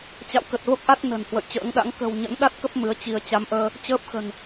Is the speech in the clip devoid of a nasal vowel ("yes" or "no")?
yes